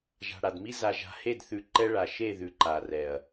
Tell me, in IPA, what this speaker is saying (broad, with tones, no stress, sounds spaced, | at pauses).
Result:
ʒ a̤˨ ɽ a˨ d m i˦ z a˨ ʒ a̤˨ h e˦˨ d θ ʉ˨ ǃ ɛ˦ ɭ a˨ ʃ e˦˨ ð ʉ˨ ǃ a˨ r ɛ˨ ɐ̯